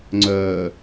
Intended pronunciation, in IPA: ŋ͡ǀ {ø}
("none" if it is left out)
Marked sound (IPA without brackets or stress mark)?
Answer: œ